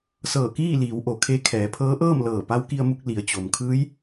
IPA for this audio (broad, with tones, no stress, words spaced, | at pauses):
sɤː˧˩kiː˥˨liː˩˧w ʔo˩kʰe˧˥ kʰɛː˩˧pʰɤː˧˥ʔɤː˥˨mlɤː˧˩ pa˧˥wki˧ə̯mu˧k̚ li˩˧ə̯t͡ɕo˩m kʰɯː˧˥j